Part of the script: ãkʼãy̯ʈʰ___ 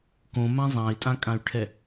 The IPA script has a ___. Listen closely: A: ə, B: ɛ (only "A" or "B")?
B